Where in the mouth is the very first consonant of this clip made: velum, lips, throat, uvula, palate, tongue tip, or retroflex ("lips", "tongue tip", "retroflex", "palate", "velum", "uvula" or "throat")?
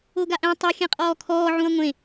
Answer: velum